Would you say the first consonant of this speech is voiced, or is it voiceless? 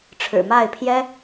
voiceless